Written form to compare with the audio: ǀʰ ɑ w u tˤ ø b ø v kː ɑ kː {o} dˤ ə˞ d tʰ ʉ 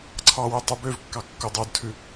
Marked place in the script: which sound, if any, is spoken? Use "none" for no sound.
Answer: o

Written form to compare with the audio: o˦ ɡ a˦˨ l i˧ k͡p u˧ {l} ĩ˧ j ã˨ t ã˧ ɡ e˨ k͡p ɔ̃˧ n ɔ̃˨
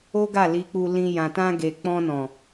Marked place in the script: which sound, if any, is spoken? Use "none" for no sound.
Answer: l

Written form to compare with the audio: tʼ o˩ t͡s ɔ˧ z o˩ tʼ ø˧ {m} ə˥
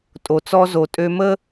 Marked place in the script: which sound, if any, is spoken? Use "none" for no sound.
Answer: m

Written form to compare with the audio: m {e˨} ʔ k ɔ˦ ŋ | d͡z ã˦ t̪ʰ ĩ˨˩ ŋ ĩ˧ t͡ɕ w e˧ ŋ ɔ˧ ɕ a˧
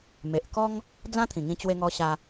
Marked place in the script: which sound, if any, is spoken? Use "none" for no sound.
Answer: e˨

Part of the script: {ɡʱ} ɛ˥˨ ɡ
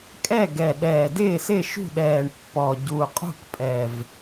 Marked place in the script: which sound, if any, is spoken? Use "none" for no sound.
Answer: kʼ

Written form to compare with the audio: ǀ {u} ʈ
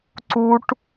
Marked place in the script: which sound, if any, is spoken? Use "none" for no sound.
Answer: u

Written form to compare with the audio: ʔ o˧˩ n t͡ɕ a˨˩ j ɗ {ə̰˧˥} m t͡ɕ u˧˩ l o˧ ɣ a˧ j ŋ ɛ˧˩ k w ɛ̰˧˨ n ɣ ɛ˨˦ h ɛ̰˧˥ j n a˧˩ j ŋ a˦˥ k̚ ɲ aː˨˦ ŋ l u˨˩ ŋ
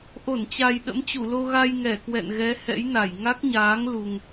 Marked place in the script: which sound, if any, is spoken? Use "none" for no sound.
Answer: ə̰˧˥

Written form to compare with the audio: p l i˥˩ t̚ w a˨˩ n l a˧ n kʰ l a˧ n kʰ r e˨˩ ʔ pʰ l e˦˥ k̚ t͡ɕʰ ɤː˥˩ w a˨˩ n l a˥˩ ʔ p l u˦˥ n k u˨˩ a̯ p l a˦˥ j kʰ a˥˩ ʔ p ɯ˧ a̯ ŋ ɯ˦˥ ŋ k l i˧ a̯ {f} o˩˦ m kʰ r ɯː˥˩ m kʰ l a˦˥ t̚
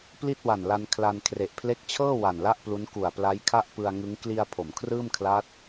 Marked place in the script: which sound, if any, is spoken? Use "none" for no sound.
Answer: pʰ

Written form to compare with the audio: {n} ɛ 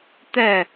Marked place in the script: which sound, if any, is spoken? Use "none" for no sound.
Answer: t̪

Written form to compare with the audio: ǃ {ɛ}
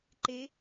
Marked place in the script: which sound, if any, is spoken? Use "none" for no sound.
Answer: e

